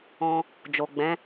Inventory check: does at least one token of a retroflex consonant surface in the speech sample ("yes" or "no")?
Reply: no